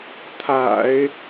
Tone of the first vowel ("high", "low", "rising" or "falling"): low